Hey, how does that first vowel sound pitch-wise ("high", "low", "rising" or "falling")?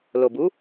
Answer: low